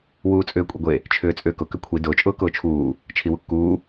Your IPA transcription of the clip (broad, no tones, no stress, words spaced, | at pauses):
wuːt͡sʼʏːkʷʼiɡʷe | t͡ʃʰʏːt͡sʼʏːkʊ kʏkʷʰi dʊːt͡ʃʼʊː kʊːt͡ʃʰuː | t͡ʃʰiwukːuː